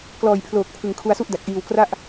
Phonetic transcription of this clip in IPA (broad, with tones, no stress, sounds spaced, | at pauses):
k l ɔː˨˩ j pʰ l oː˨˩ k̚ pʰ ɯ˨˩ ŋ kʰ u˧ a̯ s u˥˩ ʔ d a˨˩ k̚ ʔ iː˨˩ w k r a˥˩ ʔ